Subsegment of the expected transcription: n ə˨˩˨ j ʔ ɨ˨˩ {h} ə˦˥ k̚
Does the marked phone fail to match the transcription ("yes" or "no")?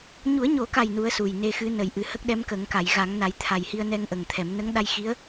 no